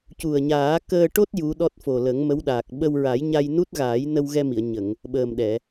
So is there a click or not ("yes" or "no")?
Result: no